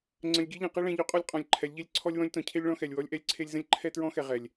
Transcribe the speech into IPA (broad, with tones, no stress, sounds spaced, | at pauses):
ŋ͡ǀ ə̃˨ lʲ ɡʲ ɛ˦ ʎ ẽ˨ q e˦ ɭ ɛ̃˨ ʎ ʉ˨ qʼ ɔ˦ lʲ qʼ ɔ̃˨ lʲ ǃʰ ɛ˨˦ lʲ ʎ e˦ lʲ ǀʰ ɔ˦ lʲ w ɔ̃˦ lʲ t ɔ̃˨ cʰ e˦ lʲ ɭ ɔ̃˦ x ɛ˨ lʲ w ɔ˦ lʲ ʔ ɛ˦ lʲ ǀʰ e˦ lʲ z ə̃˦ lʲ ǃʰ ɛ˦ t ɹ ɔ̃˦ x ɛ˨ ʁ ɛ˨ lʲ